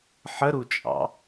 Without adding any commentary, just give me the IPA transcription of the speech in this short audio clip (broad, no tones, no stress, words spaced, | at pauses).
ħəɾut͡ʃʼɑ̰